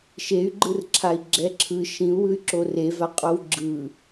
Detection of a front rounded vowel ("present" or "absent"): present